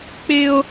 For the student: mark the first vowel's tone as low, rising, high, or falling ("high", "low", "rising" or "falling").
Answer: high